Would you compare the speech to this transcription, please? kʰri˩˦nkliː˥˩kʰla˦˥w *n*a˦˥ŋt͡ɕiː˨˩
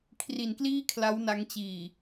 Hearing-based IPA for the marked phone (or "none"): n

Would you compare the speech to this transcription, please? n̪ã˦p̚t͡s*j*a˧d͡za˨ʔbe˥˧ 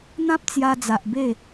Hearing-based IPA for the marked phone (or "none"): j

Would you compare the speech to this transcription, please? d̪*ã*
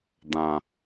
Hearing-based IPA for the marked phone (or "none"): ã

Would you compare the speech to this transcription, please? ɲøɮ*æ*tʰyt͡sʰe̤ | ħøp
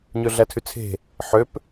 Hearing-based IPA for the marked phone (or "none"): æ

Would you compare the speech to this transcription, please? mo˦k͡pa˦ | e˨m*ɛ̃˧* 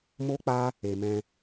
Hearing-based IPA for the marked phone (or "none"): ɛ̃˧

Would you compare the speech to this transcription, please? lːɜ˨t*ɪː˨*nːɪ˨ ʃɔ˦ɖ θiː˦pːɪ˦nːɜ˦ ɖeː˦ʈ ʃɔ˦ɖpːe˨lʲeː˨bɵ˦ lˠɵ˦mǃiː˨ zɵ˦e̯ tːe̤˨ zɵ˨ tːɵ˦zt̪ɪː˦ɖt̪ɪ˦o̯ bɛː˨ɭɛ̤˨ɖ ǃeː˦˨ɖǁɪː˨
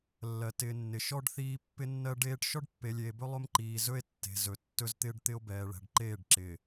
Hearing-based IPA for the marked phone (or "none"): ɪː˨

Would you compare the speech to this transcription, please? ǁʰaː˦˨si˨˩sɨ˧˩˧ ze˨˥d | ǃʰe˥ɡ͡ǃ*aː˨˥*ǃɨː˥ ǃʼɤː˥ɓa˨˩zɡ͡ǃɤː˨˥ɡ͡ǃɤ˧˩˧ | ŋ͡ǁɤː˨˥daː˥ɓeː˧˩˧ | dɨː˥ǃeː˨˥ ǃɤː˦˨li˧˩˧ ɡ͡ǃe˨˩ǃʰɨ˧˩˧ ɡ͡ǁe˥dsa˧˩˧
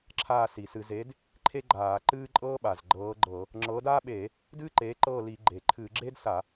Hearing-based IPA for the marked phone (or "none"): aː˧˩˧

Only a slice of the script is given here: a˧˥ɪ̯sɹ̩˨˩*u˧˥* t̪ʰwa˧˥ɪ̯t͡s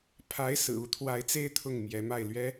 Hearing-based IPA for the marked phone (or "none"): u˧˥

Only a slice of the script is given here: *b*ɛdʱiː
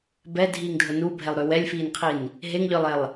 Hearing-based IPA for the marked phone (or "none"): b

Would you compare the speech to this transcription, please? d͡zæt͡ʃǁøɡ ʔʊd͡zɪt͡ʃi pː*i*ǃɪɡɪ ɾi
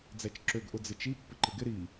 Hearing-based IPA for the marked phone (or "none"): ɪ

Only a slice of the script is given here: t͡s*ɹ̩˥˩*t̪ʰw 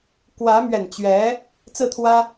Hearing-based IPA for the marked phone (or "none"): ɹ̩˥˩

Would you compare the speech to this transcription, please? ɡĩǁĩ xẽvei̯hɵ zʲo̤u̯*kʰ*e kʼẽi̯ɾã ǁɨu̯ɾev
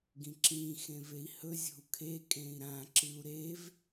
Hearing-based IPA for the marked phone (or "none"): kʰ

